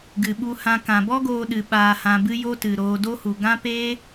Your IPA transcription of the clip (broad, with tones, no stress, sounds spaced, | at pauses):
ɡ ɨ˨ ɓ u˧ h ã˧ k ã˨ b ɔ˦ ɡ oː˧ ɗ ɨ˨ ɓ aː˧ h ã˧ b ɨ˦ j o˦ t ɨ˨ ɾ oː˧ d o˦ h u˨ ɡ ã˦ p eː˦